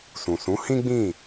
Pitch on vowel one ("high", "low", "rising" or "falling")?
low